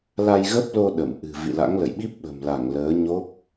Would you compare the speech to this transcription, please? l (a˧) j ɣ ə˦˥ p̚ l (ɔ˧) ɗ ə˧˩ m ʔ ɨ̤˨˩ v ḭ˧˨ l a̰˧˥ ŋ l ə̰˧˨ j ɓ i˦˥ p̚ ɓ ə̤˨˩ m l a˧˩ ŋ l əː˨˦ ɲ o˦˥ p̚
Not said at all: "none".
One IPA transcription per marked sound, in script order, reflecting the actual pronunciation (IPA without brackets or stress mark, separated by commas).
a˧, o˧